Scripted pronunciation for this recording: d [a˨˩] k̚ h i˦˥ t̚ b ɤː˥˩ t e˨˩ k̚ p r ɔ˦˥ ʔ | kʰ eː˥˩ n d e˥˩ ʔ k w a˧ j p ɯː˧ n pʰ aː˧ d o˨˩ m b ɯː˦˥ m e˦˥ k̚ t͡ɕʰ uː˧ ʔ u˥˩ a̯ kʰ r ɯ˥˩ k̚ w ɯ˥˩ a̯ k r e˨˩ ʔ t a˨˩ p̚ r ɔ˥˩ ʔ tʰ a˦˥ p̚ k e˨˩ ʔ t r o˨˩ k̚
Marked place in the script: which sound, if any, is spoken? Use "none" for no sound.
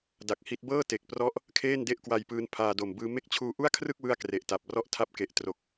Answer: a˨˩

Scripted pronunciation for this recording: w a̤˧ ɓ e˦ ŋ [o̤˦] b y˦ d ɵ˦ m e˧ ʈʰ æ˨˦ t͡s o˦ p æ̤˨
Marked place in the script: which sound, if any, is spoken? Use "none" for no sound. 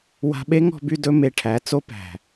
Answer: ɔ̤˦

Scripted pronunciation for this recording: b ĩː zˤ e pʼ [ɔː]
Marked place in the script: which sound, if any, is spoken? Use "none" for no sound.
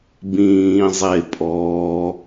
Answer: ɔː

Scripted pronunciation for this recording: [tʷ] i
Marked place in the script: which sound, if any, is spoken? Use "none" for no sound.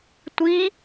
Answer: tʷ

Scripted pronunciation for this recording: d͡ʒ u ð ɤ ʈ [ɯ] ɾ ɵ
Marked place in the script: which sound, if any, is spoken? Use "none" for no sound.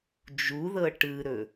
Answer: ɯ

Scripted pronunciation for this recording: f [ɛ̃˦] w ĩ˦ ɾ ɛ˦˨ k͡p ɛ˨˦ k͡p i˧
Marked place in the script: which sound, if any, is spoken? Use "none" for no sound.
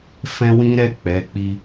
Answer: ɛ̃˦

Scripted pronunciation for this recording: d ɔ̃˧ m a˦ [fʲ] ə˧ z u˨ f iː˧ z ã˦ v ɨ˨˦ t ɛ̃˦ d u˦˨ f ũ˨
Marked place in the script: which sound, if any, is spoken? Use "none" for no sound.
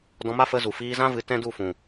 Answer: f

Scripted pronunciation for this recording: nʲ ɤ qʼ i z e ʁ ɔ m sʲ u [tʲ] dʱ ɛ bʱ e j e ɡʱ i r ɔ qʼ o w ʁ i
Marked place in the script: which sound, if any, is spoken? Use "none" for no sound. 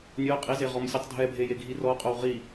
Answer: tˤ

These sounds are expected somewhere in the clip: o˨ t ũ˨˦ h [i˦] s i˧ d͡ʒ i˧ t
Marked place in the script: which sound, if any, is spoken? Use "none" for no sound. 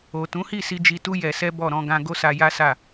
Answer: i˦˨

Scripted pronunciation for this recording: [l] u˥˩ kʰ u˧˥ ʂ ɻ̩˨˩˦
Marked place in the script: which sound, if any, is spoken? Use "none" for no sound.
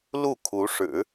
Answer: l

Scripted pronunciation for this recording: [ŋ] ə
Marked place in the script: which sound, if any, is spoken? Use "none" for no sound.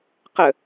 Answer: q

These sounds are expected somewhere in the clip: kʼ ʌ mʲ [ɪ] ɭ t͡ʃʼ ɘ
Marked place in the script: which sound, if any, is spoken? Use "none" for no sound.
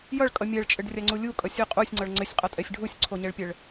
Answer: ɛ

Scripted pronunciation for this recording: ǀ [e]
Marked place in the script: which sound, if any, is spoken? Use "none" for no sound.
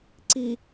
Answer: i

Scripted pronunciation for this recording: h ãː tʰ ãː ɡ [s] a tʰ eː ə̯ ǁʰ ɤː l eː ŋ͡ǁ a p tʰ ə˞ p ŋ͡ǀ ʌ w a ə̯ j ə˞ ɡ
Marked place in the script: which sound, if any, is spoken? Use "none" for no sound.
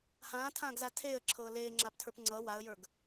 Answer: z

